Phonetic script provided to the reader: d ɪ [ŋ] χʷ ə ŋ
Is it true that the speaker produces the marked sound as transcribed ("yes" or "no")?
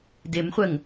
no